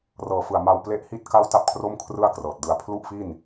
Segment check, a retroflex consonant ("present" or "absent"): absent